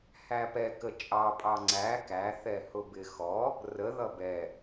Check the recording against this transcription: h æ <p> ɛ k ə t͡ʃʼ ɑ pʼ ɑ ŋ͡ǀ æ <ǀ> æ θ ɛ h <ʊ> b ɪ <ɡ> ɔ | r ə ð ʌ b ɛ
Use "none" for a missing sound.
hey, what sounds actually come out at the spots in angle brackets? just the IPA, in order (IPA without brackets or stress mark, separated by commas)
p, k, ʊ, x